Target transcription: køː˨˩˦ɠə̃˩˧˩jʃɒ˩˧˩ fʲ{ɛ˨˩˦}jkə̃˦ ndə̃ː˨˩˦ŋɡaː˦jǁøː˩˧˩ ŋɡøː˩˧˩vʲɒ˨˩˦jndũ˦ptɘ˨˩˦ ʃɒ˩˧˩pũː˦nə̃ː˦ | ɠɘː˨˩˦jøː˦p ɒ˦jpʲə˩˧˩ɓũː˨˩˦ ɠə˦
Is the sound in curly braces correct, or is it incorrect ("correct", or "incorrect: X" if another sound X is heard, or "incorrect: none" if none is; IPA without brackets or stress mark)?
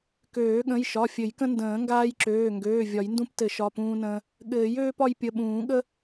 incorrect: ɘ˨˩˦